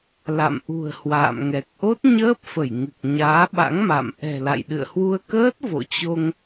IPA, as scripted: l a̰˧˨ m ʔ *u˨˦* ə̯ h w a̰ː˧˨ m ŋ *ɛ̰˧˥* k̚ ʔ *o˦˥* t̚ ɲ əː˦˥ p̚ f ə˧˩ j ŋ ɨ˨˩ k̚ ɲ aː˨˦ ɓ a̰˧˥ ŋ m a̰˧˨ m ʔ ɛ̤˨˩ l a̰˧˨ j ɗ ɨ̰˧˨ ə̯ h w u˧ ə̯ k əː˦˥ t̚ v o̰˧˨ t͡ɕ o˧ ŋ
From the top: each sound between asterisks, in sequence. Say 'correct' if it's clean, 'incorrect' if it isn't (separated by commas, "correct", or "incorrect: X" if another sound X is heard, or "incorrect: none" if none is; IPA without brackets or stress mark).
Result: incorrect: ṳ˨˩, incorrect: ɛ˨˩, correct